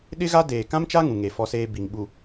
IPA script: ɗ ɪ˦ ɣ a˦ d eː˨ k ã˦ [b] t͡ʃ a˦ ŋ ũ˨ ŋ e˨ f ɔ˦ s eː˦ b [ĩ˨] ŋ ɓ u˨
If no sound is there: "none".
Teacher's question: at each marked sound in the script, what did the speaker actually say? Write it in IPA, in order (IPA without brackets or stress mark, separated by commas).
m, i˨